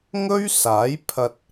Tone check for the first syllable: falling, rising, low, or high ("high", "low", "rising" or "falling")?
high